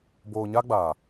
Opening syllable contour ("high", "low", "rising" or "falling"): low